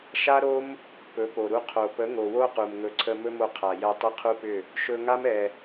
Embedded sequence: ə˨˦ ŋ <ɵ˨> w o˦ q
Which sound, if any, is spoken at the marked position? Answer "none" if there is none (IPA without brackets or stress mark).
o˨